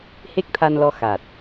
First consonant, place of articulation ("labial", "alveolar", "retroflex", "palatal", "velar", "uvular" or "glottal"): glottal